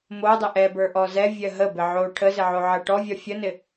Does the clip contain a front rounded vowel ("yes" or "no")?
no